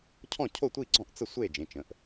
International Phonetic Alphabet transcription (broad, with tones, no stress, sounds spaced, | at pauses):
cʰ ɔ̃˥˩ cʰ o˥˩ tʷ i˥˩ ɡ͡ǀ ɔ̃˥˩ ʔ t͡s ə˥˩ sʷ e˥˩ d͡ʒ ẽ˩˧˩ t͡ʃ ə̃˩˧˩ ʔ